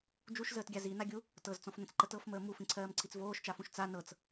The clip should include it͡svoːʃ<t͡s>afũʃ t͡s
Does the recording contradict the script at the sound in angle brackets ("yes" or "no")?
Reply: yes